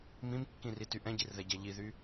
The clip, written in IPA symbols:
mĩmkːĩrity ʔɛ̃ɟirðɛɟɛ ʎiðy

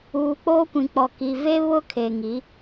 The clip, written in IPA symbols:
uː˨k͡poː˦kʷĩ˨ k͡pɔ˨ki˨ ve˦ βʊ˦kʰe˨ ŋi˨˦

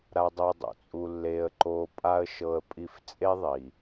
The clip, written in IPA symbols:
ɾa˥dˤo˥ dˤo̰˩t͡sʼu˥lːeː˥ə̯ǃoː˥ pʼa˥ə̯ ʃɤ˥ə̯pʼi˥f t͡sʼe˥ðˤiː˩

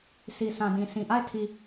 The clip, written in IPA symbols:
si˨sʰã˨dĩ˨ sĩ˨ʔa˦˨ɪ̯ tʰi˨

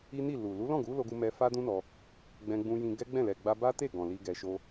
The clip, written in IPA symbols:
i˦ni˦˨ lu˨ lu˨˦lɔ̃˦˨ɡu˨˦ lo˧ɡu˧mɛ˧ fa˦dũ˦nɔ˧ | ɡ͡bɛ̃˧ɡ͡bũ˧jĩ˧ ɡɛ˦ɡ͡bɛ̃˦˨ lɛ˨ɡ͡ba˧ba˦te˦˨ ɡɔ̃˨li˧ ɡɛ˧ʃo˦

